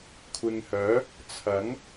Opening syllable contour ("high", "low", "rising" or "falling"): low